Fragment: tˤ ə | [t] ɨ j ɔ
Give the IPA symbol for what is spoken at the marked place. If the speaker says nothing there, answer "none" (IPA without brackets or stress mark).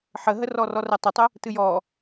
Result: t